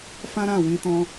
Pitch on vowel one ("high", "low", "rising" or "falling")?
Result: high